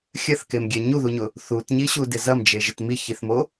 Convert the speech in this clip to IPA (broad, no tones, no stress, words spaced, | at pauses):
xʲɐθkemɡʲɛ ɲuðuɲʊ | θutɲiɕudɪ zɐmd͡ʒeʒɪt miçiθmo